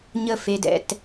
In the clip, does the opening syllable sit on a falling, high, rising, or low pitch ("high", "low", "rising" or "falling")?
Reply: falling